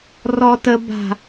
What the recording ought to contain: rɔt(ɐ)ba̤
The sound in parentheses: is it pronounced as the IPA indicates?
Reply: no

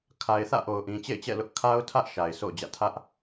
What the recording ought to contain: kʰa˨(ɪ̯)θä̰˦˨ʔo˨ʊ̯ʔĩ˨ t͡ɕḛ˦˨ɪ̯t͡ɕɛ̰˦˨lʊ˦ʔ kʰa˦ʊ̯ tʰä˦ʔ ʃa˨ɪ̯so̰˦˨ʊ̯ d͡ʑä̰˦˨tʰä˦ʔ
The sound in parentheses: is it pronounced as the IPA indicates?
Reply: yes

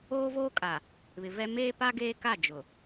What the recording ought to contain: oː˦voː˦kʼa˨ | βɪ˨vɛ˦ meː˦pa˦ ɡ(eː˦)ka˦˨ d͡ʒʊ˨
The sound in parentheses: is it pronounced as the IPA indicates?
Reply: yes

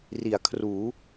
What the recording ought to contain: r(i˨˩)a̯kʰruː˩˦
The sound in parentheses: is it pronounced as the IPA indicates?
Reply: no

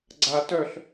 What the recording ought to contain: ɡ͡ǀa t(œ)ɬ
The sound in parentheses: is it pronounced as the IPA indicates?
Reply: yes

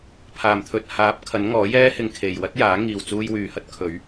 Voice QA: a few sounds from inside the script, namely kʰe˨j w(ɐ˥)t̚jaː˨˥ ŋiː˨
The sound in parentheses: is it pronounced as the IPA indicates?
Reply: yes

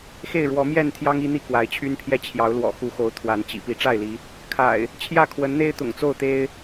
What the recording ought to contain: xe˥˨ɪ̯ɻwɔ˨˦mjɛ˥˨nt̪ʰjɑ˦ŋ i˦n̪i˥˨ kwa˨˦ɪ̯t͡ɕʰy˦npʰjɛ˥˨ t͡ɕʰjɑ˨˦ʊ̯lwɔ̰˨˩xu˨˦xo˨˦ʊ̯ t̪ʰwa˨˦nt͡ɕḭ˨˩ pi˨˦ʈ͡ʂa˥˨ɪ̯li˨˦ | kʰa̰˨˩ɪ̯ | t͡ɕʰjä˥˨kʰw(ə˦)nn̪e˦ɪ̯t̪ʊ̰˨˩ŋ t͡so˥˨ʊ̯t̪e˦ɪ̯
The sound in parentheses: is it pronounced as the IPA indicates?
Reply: no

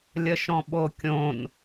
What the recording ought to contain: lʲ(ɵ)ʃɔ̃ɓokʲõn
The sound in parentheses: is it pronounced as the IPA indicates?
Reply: no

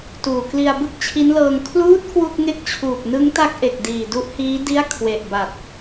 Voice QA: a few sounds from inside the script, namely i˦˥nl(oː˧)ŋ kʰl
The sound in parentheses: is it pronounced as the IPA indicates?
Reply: no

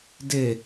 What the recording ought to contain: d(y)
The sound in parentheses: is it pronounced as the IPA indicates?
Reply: no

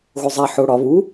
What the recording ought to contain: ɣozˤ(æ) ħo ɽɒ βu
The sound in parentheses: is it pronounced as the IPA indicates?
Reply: yes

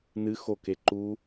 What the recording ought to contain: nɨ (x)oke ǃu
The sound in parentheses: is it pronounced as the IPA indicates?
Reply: yes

